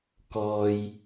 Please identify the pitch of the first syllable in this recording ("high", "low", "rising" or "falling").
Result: low